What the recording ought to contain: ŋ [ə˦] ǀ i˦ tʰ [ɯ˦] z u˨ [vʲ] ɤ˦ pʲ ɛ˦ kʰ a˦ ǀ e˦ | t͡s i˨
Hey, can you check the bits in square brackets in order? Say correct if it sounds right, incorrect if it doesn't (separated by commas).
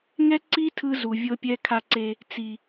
incorrect, correct, correct